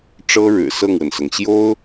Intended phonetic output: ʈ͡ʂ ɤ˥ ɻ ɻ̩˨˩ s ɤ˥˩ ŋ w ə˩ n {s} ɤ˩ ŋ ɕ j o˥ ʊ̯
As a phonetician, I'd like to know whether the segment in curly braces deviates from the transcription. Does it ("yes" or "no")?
no